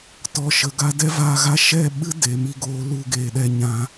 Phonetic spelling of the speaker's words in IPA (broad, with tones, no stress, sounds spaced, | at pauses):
t ɔ˨ ʃ ə˨ ɡ a˧ d ɛ˦ v aː˧ ɣ a˧ ʃ ɛ˦˨ ɓ ɨ˦ d e˨ m i˧ ɡ oː˧ l u˧ ɡ eː˨ ɗ ɛ˧ ɲ ã˧